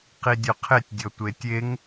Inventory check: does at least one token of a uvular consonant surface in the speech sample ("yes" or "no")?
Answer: yes